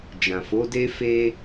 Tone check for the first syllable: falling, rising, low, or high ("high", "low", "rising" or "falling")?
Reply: low